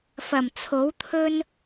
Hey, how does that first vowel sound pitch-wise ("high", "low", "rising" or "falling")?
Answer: low